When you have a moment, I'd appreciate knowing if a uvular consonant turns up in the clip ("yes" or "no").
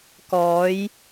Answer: no